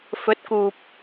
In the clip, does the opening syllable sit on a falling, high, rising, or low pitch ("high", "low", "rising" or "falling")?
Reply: rising